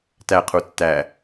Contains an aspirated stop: yes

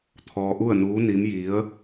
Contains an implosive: no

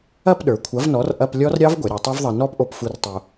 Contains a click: no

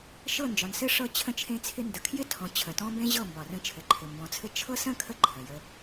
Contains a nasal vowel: yes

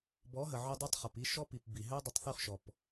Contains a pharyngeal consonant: yes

